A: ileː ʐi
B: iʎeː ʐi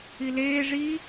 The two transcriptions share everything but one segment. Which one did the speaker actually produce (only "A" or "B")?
A